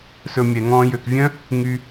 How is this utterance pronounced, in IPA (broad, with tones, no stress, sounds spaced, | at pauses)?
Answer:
s ɵ˧ mʲ ɛ˨ ŋ ɔ̃ː˦ j ø˨ k vʲ œ̃˦ | ŋ y˧